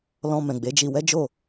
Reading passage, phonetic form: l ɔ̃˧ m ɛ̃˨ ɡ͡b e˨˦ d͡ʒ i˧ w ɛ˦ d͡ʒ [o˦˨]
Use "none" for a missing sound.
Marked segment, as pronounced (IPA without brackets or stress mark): o˦˨